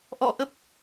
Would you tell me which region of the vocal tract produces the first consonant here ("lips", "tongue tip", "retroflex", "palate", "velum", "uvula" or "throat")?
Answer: throat